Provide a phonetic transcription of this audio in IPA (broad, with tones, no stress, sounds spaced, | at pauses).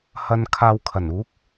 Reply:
h ɐ˧ n kʰ aː˧ w kʰ ɐ˨˩ n uː˨˥ k̚